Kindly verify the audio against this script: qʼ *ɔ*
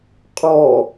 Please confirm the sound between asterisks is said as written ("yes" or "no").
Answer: yes